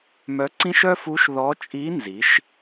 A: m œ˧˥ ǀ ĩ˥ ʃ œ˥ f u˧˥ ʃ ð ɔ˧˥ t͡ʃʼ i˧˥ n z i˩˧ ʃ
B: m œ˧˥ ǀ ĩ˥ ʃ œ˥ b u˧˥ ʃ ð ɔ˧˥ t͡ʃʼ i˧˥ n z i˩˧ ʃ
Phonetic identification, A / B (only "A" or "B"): A